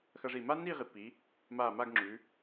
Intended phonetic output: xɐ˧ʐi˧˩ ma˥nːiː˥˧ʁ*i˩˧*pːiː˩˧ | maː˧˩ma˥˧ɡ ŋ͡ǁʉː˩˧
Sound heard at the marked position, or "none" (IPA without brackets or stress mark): i˩˧